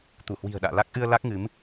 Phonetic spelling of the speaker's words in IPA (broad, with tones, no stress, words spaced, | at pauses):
t̪u˧˩hwi̤˨˩ə̯ɗa̰ː˧˨ la˦˥k̚ʔɨ˧ə̯ la˦˥k̚ŋɨ˨˦m